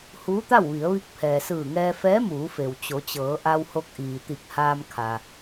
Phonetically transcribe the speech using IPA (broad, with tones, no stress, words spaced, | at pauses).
huː˧˥t̪a˥˨wʋi˩˧ə̯ʋi˧˥k̚ pʰɛː˩sɯː˧˩ŋɛː˧fɛː˧˥ muː˩˧fe˩w t͡ɕo˩˧t͡ɕɤː˩˧ʔa˧who˧k̚ ʔiː˩t̪i˧˩k̚haː˧m kʰa˩